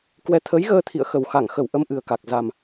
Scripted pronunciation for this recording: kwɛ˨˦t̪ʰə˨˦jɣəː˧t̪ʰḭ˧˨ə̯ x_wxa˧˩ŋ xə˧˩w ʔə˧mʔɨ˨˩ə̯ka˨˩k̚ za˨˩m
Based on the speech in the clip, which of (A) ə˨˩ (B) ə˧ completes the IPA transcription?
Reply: A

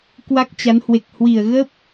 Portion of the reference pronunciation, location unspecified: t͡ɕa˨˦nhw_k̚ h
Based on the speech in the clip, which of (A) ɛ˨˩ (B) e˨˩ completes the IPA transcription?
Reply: B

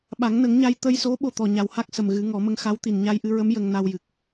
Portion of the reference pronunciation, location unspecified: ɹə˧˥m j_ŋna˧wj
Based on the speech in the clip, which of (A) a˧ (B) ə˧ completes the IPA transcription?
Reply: B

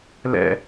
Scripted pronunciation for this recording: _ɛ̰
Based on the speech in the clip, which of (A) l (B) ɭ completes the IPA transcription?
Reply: A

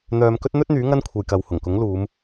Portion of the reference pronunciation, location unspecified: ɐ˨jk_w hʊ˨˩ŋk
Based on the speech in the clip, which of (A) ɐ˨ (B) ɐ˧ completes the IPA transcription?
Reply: A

